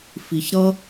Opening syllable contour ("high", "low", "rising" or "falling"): low